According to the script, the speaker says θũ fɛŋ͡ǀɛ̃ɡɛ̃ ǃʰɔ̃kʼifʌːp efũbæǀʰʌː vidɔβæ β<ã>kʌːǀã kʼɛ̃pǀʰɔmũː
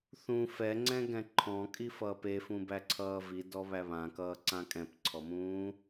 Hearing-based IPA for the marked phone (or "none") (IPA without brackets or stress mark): ã